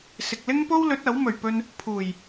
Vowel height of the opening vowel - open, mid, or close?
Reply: close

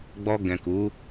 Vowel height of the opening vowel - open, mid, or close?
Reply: mid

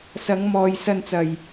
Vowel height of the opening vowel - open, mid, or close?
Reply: open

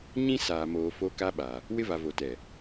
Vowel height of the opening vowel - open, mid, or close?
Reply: close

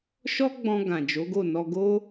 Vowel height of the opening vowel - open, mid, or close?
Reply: mid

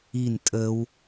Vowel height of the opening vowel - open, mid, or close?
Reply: close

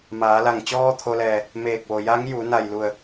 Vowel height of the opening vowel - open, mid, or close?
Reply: open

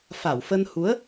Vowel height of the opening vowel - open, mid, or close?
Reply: open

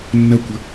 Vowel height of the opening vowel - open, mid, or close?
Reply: open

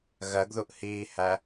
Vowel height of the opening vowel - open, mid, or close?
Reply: mid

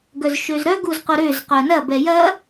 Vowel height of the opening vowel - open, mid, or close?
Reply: mid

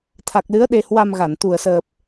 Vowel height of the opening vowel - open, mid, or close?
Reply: open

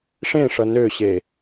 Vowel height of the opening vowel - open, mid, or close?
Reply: mid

